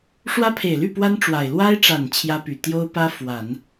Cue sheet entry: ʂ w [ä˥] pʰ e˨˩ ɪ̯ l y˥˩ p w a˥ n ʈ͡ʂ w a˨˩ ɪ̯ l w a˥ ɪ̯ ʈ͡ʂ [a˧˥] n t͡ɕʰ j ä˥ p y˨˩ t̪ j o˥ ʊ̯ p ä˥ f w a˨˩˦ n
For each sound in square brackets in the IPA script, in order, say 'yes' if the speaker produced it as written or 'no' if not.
yes, no

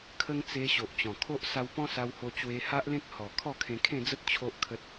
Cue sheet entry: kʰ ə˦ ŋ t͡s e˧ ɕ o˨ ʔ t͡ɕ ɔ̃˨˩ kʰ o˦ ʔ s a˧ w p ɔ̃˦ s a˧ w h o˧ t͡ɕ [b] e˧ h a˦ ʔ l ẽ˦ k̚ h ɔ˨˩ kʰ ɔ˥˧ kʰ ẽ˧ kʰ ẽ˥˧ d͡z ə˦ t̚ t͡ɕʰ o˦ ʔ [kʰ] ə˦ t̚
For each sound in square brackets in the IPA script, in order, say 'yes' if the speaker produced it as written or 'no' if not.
no, yes

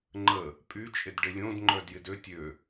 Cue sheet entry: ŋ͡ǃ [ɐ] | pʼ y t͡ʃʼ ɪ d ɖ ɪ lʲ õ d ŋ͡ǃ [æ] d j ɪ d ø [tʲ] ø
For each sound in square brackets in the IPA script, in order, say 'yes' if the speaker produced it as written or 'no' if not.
no, no, yes

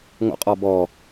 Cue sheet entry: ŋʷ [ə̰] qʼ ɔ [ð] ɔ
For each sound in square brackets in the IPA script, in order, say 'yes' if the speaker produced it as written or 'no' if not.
yes, no

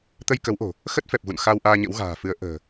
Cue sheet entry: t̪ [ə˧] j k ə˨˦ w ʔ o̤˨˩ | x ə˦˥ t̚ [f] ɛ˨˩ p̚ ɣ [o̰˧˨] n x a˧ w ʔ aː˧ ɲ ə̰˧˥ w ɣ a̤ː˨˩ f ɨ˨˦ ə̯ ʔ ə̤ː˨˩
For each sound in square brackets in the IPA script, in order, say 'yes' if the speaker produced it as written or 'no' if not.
yes, yes, no

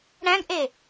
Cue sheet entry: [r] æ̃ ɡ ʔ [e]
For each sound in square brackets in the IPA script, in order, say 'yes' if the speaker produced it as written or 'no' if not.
no, yes

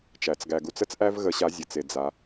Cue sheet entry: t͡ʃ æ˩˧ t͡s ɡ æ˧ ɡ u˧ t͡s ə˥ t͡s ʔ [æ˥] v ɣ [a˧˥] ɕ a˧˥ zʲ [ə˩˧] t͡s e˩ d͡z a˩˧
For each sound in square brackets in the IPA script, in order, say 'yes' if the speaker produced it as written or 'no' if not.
yes, no, yes

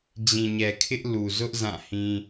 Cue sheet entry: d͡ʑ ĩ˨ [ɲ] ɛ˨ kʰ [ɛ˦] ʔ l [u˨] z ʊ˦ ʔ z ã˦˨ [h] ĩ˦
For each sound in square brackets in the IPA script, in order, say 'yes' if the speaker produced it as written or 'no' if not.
yes, no, yes, yes

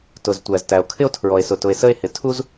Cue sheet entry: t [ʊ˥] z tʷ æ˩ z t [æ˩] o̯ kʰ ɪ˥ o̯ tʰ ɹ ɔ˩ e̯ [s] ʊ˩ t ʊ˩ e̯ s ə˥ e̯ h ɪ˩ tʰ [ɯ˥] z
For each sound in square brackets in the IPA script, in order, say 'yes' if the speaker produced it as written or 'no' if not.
no, yes, yes, no

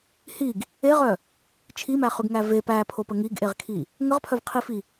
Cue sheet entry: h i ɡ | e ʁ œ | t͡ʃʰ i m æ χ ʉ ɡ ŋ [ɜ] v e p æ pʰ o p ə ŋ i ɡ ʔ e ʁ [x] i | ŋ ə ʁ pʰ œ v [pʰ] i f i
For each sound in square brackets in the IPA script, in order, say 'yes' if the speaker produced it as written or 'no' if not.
no, no, no

